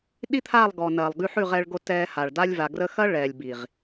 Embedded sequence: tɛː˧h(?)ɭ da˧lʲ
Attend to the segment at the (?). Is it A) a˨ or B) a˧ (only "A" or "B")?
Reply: A